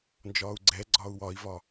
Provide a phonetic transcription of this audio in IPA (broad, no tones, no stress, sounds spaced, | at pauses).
n d͡ʒ ɒː u̯ ɡ͡ǀ ɛ ɡ͡ǀ ɒː u̯ w ɒ i̯ v ɒ